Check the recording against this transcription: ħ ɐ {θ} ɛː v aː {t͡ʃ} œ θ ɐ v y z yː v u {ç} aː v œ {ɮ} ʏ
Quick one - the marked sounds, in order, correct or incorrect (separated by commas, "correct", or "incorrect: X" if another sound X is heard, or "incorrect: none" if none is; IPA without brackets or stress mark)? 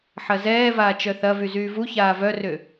incorrect: z, correct, correct, incorrect: r